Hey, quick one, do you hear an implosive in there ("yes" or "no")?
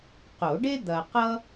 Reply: no